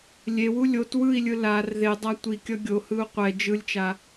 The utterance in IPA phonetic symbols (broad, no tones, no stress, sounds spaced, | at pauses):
lʲ e w u lʲ o t w ɯ i̯ lʲ ɯ l a r ð e dˤ a tʷ i kʲ ʌ ɡʲ o h ɯ u̯ qʷ ɛ d͡ʒ ɯ lʲ t͡ʃ a